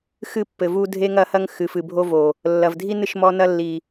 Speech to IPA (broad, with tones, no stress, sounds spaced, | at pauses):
x ɨ˦˨ pː ɘ˨ v u˦ dʱ e˦ ŋ ɐ˦ h ɐ˦ ŋ x ɨ˨ f ɨ˨ bʱ o˦ v o˨ | lː ɐ˨ v dʱ i˦ n ɨ˦ ʃ m ɔ˦ n ɐ˦ lː i˨